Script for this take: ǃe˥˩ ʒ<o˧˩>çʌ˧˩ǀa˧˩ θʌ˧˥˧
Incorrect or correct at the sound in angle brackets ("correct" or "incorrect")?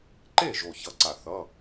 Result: correct